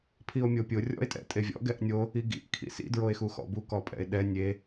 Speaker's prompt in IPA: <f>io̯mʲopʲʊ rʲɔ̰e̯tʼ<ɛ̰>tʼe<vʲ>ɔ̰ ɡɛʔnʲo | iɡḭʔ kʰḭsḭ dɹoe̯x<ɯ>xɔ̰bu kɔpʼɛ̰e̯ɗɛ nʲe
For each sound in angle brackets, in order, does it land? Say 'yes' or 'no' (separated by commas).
no, yes, yes, no